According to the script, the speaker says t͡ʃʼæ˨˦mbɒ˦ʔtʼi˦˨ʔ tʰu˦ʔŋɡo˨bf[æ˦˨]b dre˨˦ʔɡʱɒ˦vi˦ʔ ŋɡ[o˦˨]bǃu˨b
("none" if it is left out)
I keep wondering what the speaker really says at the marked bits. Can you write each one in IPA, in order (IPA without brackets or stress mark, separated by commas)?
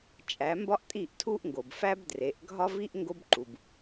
æ˦, o˦